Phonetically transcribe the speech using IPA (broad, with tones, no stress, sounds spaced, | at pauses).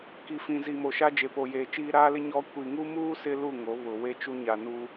k i˨ f ĩ˨ z i˨ m o˨ ʃ a˦ d͡ʒ e˨ p o˨ j eː˨ t͡ʃ iː˦ ɾ aː˦ l ɪ˦ ɲ ɔ˦ kʷ i˨ ŋ u˦ m uː˦ s ɪ˦ l u˦˨ ŋ o˨˦ β ʊ˨ w e˦ t͡ʃ u˦ ɲ a˨ n u˦